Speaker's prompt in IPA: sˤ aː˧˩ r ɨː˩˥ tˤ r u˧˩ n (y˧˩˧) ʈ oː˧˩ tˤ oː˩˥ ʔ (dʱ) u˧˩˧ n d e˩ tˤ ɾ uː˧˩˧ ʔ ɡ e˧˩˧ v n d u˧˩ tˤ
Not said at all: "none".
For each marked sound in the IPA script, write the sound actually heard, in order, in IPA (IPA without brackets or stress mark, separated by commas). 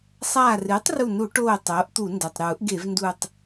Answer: u˧˩˧, t̪